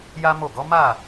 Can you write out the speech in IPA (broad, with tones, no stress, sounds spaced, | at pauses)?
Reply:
j a˦ m o˦˨ ɡ ɔ˨˦ m a˦˨